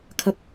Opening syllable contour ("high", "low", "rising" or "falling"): high